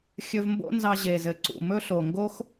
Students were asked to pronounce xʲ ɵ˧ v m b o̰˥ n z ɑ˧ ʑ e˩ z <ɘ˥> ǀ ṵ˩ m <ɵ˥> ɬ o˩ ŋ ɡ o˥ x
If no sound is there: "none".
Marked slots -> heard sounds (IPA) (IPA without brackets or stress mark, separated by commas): ɘ˩, ɵ˥